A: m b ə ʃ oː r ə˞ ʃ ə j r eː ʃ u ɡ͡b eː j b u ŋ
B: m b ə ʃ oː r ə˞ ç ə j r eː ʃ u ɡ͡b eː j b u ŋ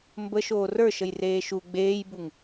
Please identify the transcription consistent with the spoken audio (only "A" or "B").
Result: A